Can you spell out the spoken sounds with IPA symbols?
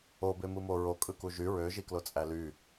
o b e m ɯ m o ɹ o kʼ ɯ k u ʒ y ɹ ø ʒ i k l o t͡sʼ æ l y

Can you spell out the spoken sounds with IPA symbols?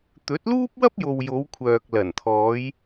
t̪ ɵ˨˥ t̚ l uː˥ p̚ w ɐ˥ p̚ j o˨ w j o˨˧ w kʷʰ œː˨ k̚ l ɐ˨˩ n t̪ʰ ɔː˨˧ j

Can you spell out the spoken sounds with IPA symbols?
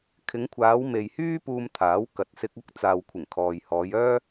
kʰ ɪ˨˧ ŋ kʷʰ aː˨˧ w m e˨ j h yː˥ p uː˧ m t̪ʰ aː˨˥ w k ɐ˨ t̚ s ɪ˧ k̚ ɐ˥ k̚ t͡s aː˨ w kʷʰ ɪ˨˩ ŋ kʰ ɔː˨ j h ɔː˨˧ j œː˥

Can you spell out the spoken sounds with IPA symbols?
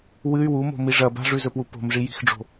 w ɨ y̯ w u m o̤ m i ʐ ɐ b a̤ ʐ ʉ z ɵ p w u p o̤ m ʐ i j i̤ x ɖ͡ʐ o̤

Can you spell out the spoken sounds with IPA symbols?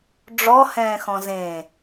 ɖ͡ʐ ɔ h ɛ̃ː x ɔ̃ z ẽ

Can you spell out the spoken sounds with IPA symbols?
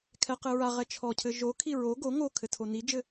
kʰ ɛ q ɘ ɹ a ʁ ɛ t͡ʃʰ ɔ cʰ ɘ ʒ o kʰ i ɹ o ɡ o ŋ o kʰ ɘ tʰ o n i d͡ʒ ɘ

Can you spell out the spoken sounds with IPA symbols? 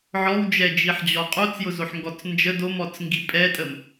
ʕ ɔ w d͡ʒ ɛ d͡ʒ i ħ d͡ʑ ɔ qʼ o t͡s j ʊ z o ħ ŋ ɡ ɔ t͡s n d͡ʒ ə d o m ɔ t͡s ŋ ɡ i pʼ ɛ tʼ ə m

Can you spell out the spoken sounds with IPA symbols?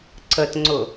ǀ ə t ŋ͡ǀ ʊ

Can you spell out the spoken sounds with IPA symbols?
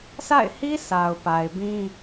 s a̰˦˨ ɪ̯ h i˦ s a˨ ʊ̯ p a˨ ɪ̯ b ĩ˦

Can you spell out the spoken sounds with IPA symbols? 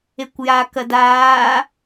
e kʷ j a k ɐ d aː

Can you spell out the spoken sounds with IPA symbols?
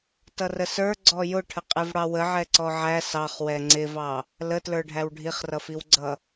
t ʌ r ə s ə˞ ɡ͡ǀ ɔ j ʊ ʈʰ ə qʼ i v ɽ ɑ w ə ʕ ɛ ǀ ɔ ʕ æ s ɑ χ w ɛ ŋ͡ǀ ɪ v ɑ | l ə t l ə˞ ɖʱ æ w ɖʱ i χ r ʌ f i w ɡ͡ǀ ʌ

